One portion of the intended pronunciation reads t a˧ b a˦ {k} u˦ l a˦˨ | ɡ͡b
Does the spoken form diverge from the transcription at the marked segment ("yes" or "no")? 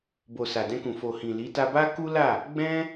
no